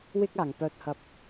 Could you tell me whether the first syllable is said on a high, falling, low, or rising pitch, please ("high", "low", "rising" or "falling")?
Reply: high